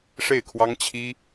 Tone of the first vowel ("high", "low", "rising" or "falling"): falling